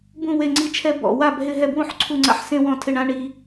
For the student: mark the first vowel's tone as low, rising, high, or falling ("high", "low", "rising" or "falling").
falling